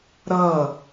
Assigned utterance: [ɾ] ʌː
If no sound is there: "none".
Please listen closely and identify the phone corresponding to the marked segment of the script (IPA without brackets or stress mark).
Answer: ɾ